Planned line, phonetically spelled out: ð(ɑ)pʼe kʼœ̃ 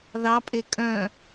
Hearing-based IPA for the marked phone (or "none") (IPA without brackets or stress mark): ɑ